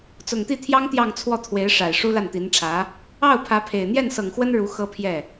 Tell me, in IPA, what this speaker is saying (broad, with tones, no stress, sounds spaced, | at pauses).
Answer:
t͡s ʊ˨˩ ŋ t̪ i˥˩ t̪ʰ j ɑ˥ ŋ t̪ j ɑ˥˧ ŋ t͡sʰ w ɔ˥˩ t̪ʰ w e˧˥ ɪ̯ ʂ a˨˩ ɪ̯ ʂ u˥ l a˥˩ n t̪ i˧˥ n ʈ͡ʂʰ ä˧˥ | ɑ˥˩ ʊ̯ pʰ ä˧˥ pʰ e˨˩ ɪ̯ n̪ j ɛ˥˩ n s ɤ˨˩ ŋ x w ə˥ n ɻ u˧˥ x ɤ˥ pʰ j ɛ˥˩